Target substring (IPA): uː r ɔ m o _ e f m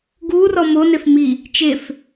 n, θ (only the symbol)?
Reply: n